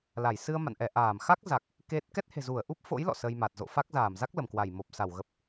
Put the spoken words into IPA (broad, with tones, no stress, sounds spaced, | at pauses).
l a˧˩ j s ɨ˧ ə̯ m a̰˧˨ n ʔ ɛ˧˩ ʔ aː˧˩ m x a˦˥ k̚ z a˨˩ k̚ | k e˦˥ t̚ k ɛ˦˥ t̚ h e̤˨˩ z u˧˩ ə̯ ʔ u˦˥ p̚ f o̰˧˥ j l ɔ̰˧˨ s ə˧ j m a˨˩ t̚ z o̰˧˨ f a˦˥ k̚ z aː˧˩ m z a˦˥ k̚ l ə˧˩ m k w a˧˩ j m o˨˩ p̚ s a˧˩ w ɣ ə˨˩ p̚